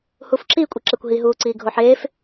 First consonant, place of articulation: glottal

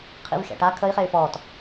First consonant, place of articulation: uvular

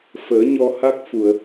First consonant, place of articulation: labial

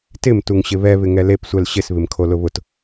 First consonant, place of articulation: alveolar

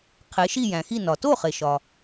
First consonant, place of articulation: uvular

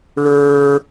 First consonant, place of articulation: retroflex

